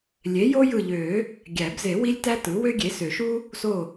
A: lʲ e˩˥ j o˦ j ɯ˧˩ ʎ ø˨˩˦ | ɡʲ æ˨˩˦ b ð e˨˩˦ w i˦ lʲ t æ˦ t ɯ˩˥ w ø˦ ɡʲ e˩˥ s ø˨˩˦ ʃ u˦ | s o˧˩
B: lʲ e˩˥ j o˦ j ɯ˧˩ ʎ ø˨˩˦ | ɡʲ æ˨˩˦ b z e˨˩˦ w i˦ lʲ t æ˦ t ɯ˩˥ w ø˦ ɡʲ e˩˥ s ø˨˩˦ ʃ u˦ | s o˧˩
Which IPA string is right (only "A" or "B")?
B